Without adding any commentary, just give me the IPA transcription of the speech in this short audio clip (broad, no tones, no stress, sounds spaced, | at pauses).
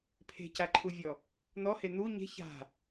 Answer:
pʰ e̤ c a ǃʰ u vʲ ɔ | n̪ ɔ h e n̪ u ɲ e̤ ç a̤